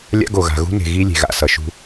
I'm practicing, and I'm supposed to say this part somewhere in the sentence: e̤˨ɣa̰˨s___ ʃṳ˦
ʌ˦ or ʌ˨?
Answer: ʌ˨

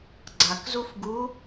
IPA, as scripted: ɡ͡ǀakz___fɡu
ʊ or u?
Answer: u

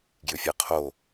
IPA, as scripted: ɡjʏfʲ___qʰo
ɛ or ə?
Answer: ɛ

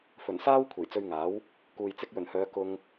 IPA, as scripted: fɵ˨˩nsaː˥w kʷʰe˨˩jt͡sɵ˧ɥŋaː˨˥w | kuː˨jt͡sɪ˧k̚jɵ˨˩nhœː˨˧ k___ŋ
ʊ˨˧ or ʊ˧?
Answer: ʊ˧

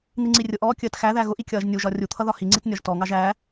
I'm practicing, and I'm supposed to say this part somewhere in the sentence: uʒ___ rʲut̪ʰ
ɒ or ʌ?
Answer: ɒ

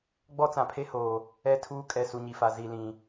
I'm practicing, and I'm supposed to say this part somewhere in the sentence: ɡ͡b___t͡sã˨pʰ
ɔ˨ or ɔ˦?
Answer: ɔ˦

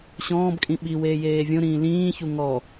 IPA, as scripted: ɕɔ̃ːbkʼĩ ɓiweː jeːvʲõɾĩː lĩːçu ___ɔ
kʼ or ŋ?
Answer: ŋ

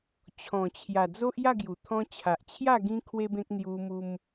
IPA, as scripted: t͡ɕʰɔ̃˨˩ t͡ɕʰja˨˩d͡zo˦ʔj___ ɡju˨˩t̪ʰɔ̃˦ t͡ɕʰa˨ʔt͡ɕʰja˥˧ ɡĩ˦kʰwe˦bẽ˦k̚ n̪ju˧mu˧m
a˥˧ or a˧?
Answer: a˥˧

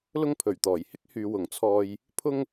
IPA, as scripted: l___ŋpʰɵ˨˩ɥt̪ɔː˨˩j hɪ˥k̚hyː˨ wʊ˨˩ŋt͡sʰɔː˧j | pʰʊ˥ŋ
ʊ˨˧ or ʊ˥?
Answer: ʊ˥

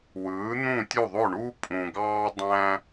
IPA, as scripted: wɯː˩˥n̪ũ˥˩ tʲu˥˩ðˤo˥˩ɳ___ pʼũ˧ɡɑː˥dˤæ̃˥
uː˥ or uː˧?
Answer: uː˥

